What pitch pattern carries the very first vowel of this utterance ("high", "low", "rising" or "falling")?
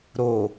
low